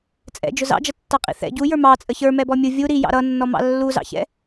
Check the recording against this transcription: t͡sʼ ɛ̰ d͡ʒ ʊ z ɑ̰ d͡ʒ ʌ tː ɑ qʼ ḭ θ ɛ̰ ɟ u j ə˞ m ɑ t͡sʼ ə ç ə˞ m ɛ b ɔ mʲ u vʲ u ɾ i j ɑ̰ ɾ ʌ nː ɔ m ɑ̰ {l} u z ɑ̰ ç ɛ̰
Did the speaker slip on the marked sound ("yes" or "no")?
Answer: yes